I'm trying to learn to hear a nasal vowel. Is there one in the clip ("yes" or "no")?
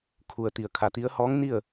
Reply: no